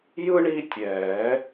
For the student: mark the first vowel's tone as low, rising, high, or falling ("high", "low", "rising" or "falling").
high